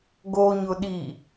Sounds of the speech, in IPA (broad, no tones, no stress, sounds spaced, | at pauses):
ɡ o ɲ ʊ ɗ i